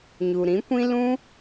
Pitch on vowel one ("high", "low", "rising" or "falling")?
low